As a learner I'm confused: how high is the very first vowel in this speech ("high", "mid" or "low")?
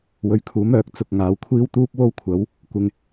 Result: mid